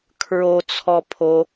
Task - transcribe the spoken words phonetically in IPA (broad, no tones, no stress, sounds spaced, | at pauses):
kʰ ɹ o t͡sʰ ɔ pʰ o